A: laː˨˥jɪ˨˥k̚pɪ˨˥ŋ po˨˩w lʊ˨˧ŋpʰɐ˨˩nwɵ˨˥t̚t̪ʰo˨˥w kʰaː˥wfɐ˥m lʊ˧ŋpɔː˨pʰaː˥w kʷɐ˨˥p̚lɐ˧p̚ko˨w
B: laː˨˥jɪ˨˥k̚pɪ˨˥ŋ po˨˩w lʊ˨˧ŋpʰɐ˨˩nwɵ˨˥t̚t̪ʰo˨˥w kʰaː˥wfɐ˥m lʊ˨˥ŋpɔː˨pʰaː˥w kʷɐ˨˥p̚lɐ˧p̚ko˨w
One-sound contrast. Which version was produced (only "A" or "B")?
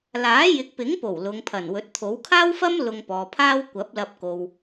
A